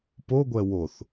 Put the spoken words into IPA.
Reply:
p o ɡʷ ɛ w o θ

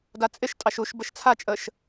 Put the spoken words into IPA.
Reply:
d a t͡sʼ ɪ ʃ tʼ ɑ ʃ u ʃ b ə ʃ t͡sʰ a t͡ʃʼ ə ʃ

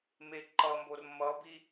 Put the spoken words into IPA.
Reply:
m e ǃ ʌ m b o r m ʌ b i

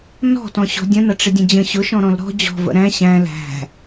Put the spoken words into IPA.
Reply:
n ɔ̤ t ɔ̃ ɕ ɔ̤ dʲ ə̃ n ʌ ʈ͡ʂ ɪ dʲ ə̃ d͡ʑ ə̃ ɕ ʊ ʃ ɔ̃ ɾ ɔ̃ l ɾ ɔ̤ d͡ʑ ɔ̤ v ə̰ ɾ æ̃ ɕ æ̃ l æ̤

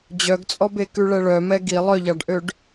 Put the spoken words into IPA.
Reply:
d͡ʑ œ ɡ t͡sʼ ɔ b e k ʉ ɭ ɛ ɭ œ m ɛ ɡ i lˠ œ ʎ ɑ ɖ ʔ ø ɖ

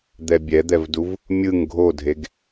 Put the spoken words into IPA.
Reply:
d̪ ɛ bʲ ɛ d̪ ɛ v d u v | mʲ ɯ ŋ ɡʱ o dʱ e ɡ

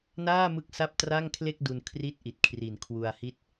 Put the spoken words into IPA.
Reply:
n aː˥˩ m ɯ˦˥ k̚ s a˥˩ p̚ t r a˥˩ ŋ kʰ l e˥˩ k̚ d u˧ n kʰ r i˥˩ t̚ ʔ i˨˩ t̚ kʰ r i˨˩ n kʰ w u˧ a̯ h i˦˥ t̚

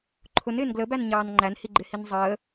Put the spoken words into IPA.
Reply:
ǃʰ ʊ n ɪː n ɡ l ə b æ n ɲ ɑː n ŋ͡ǃ æ n h i ɡ͡ǃ ɪ h i n zˤ əː

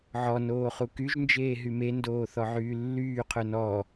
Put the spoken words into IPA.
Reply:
ʕ ɔ n oː χ u k y ʒ n d͡ʒ eː ɦ y m e n d oː θ ɔ ʕ yː lː yː qʰ œ n ɔː

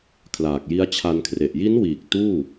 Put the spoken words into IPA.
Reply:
kʰ l aː˨˩ k̚ j i˦˥ a̯ t͡ɕʰ a˧ n kʰ r e˨˩ ʔ j i˦˥ n w iː˨˩ k̚ t uː˥˩

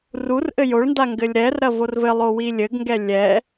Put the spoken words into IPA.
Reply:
r u r ʔ ɘ j o ɭ n d a ŋ ɡ ɘ lʲ ɾ ɛ r ɾ ɐ v o r v ɘ lˠ o w i lʲ ɘ ɡ ŋ ɡ ɛ lʲ ɛ

